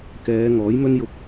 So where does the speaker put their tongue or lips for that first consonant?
velum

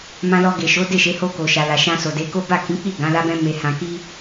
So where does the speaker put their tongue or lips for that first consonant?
lips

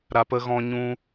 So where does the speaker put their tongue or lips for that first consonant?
tongue tip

